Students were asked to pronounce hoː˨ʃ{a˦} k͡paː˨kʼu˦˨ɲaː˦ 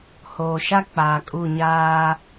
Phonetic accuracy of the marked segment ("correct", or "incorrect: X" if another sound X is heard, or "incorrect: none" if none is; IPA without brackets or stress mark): correct